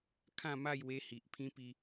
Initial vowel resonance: nasal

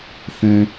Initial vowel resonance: nasal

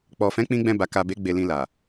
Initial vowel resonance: oral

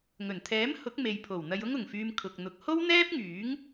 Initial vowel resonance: oral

